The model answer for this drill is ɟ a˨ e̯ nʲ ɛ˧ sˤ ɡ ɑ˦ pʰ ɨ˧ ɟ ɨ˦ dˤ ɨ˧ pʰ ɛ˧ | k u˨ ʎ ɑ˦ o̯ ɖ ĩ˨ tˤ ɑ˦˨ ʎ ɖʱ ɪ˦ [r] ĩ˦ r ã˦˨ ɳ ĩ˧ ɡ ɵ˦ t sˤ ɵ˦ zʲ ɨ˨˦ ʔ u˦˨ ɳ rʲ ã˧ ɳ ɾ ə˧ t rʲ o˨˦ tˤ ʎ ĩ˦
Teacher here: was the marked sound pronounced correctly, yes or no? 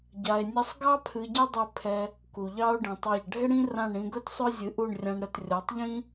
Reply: no